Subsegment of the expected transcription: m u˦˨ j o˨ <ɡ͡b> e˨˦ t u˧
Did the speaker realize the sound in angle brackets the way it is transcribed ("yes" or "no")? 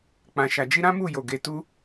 no